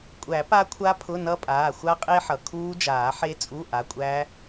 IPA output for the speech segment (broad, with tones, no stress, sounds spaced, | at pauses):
kʷʼ æ˨˩˦ p a˦˥ kʷʰ a˦˥ pʰ ʊ˧˥˧ n ʌ˦˥ pʼ aː˩˧˩ xʷ a˦˥ qʼ e˦˥ ħ ʌ˩ kʰ uː˦˥ d͡ʒ aː˨˩˦ ħ e˦˥ t͡sʼ u˧˥˧ ʔ a˩˧˩ kʷʼ æː˦˥